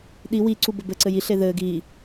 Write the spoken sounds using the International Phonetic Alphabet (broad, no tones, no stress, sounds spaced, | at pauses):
ɗ i w i ǀ u b ɘ b ɘ ǀ ɘ j i ɬ e ð ɘ ɡ i